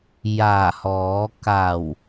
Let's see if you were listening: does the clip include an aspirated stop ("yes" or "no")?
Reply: no